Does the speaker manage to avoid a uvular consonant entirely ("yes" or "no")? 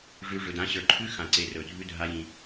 yes